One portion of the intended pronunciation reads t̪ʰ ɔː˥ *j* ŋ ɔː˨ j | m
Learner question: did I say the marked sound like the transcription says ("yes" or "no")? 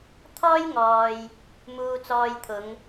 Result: yes